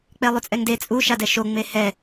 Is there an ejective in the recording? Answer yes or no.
yes